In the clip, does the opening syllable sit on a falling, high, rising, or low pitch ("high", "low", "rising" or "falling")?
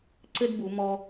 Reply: high